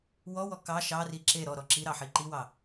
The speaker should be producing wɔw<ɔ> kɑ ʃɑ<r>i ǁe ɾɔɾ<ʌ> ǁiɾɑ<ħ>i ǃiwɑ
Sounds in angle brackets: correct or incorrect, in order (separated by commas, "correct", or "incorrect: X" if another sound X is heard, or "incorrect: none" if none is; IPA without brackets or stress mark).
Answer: correct, correct, incorrect: ɔ, correct